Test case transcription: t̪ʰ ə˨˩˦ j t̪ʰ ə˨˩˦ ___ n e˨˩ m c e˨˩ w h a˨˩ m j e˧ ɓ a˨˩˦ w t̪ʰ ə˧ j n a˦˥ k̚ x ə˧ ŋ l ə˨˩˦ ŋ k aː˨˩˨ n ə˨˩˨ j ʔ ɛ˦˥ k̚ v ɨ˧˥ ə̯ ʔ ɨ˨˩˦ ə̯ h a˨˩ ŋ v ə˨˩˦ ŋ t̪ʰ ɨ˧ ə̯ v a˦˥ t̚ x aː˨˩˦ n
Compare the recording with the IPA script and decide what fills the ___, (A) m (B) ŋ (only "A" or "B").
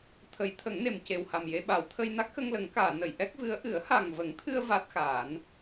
B